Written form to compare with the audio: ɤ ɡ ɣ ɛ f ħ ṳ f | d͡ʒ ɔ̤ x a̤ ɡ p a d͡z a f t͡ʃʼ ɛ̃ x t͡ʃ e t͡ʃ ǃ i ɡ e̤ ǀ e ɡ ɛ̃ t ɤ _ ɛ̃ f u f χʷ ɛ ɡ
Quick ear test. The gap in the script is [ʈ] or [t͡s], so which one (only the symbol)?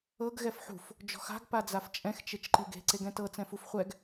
t͡s